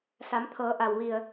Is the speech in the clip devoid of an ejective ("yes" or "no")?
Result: yes